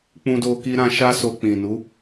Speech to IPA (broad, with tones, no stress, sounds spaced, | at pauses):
k͡p ũ˧ d o˧ k i˦ ɾ ã˦ ʃ a˦ s o˧ k͡p ĩ˨ n u˨˦